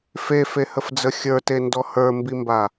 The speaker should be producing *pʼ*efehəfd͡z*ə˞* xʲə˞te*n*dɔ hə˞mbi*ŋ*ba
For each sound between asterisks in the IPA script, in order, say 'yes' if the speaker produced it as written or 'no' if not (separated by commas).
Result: no, no, yes, no